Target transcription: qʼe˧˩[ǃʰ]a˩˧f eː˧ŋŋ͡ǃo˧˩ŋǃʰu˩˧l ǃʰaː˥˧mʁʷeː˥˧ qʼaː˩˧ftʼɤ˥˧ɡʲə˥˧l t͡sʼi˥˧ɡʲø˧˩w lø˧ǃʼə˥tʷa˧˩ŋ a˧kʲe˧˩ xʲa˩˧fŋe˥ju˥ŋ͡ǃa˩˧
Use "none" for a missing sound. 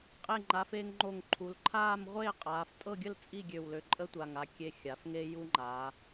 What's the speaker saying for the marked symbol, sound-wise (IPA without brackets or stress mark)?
ŋ͡ǃ